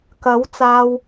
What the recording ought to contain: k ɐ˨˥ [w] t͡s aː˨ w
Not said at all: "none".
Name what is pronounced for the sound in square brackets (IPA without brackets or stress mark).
w